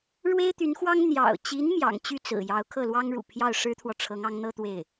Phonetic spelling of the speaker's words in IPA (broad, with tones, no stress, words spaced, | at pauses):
ɻwe˥ɪ̯t̪y˧˥nxwɑ˥ŋ n̪jɑ̰˨˩ʊ̯t͡ɕi˧˥n mjɑ̰˨˩ŋt͡ɕy˥˩t͡sɹ̩˨˩ jɑ˧˥ʊ̯kʰɤ˥˩lwɑ˥ŋɻṵ˨˩ pʰjɑ˥˩ʊ̯ʂɻ̩˥t̪ʰwɔ˨ʈ͡ʂʰɤ˧˥ŋ ɑ˧˥ŋn̪ɤ˥t̪we˥˩ɪ̯